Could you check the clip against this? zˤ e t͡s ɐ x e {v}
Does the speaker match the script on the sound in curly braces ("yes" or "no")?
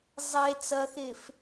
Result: no